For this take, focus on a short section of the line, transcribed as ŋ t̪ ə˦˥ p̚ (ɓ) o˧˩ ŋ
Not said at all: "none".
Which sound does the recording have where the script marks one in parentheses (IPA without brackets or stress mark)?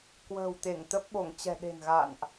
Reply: ɓ